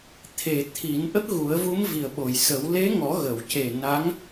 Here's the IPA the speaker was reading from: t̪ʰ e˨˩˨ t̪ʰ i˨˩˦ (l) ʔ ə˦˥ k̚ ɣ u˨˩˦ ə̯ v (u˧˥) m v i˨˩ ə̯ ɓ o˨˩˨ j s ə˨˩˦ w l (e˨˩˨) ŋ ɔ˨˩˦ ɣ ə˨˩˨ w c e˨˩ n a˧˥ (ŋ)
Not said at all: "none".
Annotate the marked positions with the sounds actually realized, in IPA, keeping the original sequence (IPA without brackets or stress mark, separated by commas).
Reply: n, u˧˥, e˧˥, ŋ